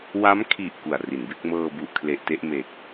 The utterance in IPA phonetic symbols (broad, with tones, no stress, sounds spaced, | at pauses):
w a˦˥ m kʰ i˨˩ ʔ k u˨˩ a̯ r i˩˦ n b e˥˩ k̚ m ɤː˧ b u˨˩ ʔ kʰ l e˨˩ ʔ t e˥˩ ʔ m e˨˩ k̚